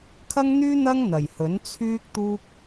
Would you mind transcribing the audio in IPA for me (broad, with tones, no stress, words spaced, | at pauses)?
kʰɐ˥ŋn̪yː˥n̪ɐ˥ŋ n̪ɐ˨˩jhɵ˨˥n t͡sʰyː˥k̚t̪uː˥k̚